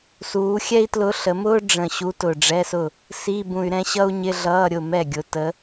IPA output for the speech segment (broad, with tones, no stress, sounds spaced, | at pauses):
s uː˩˧ xʲ ɛ˥ i̯ t l ʊ˧˥ ɬ ə˩˧ m ʊː˥ ɖ͡ʐ ə̃˨˩ ɕ u˧˥ t ʊ˨˩ ɖ͡ʐ ɛ˧˥˧ s ʊ˥˩ | s i˧˥˧ b ũ˨˩ y̯ ɾ ɛ̃˥ ɕ ʌ˥ u̯ ɲ ɪ˧˥˧ ɮ ʌː˧˥˧ ɾʲ ʊ˥˩ m ɛ˥˩ ɡʲ ʊ˨˩ t ə˧˥